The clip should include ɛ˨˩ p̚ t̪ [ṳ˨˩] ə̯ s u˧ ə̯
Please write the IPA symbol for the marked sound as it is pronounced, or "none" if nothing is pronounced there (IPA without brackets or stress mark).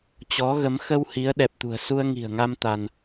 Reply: ṳ˨˩